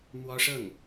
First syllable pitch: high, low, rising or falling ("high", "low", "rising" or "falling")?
high